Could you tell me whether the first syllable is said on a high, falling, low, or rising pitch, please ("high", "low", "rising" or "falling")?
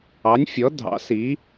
rising